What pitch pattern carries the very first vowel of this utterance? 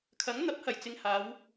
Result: rising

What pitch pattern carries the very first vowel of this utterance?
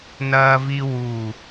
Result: high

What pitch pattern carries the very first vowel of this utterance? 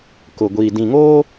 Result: low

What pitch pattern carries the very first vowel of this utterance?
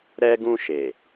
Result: high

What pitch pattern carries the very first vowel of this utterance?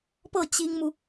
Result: falling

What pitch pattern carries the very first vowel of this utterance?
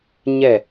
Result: falling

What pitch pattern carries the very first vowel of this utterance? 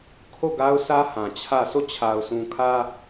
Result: falling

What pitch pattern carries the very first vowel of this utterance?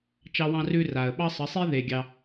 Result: high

